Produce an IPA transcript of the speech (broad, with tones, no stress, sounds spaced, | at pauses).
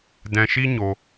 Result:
d ɛ̃˧ ʃ i˦ ɲ o˧